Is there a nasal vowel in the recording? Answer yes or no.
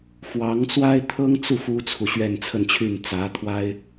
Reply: no